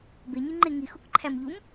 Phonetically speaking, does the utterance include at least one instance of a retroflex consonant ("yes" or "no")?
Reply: no